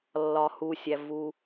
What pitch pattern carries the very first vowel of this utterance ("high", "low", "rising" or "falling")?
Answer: low